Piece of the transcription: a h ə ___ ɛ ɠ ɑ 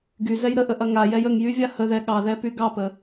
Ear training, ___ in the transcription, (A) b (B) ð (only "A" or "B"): B